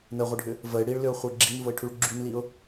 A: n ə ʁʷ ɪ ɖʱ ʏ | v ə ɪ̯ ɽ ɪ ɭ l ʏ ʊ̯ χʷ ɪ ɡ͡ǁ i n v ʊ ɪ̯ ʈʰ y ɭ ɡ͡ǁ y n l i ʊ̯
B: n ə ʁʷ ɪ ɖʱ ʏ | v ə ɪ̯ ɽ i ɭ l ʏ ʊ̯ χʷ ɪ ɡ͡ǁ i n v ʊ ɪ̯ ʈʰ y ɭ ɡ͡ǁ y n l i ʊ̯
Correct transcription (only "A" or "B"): B